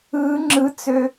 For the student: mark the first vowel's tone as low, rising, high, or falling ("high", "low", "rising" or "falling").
rising